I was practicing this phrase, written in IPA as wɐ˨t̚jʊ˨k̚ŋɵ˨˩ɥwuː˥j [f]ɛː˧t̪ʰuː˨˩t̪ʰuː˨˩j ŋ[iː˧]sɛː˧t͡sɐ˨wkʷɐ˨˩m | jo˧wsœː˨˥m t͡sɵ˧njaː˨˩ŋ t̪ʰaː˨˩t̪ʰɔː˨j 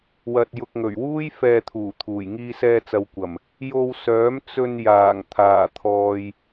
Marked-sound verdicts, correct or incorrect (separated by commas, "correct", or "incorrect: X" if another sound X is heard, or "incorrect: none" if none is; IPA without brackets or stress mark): correct, correct